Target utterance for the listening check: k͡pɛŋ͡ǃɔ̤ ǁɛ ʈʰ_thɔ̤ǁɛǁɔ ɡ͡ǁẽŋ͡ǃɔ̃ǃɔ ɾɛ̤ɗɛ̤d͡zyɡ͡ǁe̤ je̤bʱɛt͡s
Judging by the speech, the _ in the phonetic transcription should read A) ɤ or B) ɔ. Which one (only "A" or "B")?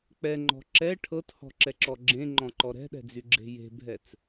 A